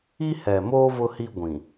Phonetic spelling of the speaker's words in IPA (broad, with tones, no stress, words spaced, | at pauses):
i˦hɛ˨moː˦ vʊ˦hi˦ ɡʷĩ˨